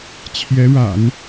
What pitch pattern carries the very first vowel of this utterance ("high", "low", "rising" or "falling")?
rising